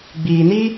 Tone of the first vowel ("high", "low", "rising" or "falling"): low